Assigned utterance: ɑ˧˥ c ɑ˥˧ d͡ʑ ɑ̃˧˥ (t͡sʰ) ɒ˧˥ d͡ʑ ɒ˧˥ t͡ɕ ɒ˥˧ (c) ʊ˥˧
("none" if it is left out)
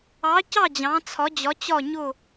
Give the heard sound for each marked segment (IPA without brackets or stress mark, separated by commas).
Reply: t͡sʰ, ɲ